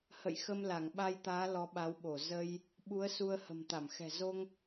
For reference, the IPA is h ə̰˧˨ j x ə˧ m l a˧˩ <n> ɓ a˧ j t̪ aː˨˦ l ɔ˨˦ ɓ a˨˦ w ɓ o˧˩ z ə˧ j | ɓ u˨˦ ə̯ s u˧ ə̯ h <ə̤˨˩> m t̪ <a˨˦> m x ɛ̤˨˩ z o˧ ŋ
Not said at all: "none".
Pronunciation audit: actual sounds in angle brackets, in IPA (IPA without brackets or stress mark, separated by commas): ŋ, ə̤˨˩, a˧˩